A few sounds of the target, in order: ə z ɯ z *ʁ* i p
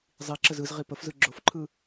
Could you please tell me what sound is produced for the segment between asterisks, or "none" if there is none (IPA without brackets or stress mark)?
ʁ